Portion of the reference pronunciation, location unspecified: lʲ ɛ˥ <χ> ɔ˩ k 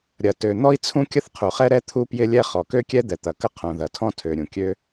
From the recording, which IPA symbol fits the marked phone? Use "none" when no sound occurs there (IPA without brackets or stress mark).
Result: χ